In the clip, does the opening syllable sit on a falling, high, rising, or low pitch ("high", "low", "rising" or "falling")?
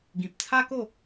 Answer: low